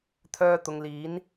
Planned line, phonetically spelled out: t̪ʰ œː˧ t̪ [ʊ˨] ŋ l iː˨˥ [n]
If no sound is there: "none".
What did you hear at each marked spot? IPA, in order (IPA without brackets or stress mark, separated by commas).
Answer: ʊ˨, n